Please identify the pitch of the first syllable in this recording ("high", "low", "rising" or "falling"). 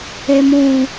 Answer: low